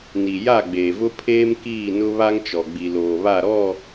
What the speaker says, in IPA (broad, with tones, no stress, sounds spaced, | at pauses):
n i˨ j a˦˨ ɡ͡b eː˨ v ʊ˦ pʰ eː˦ m k iː˦˨ n ʊ˦ β a˦ ŋ t͡ʃ ɔ˨ ɡ͡b i˨ l oː˨ β a˦˨ ɾ ɔ˦˨